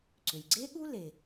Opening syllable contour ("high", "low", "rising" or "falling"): low